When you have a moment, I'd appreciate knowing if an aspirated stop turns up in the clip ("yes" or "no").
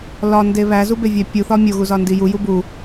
no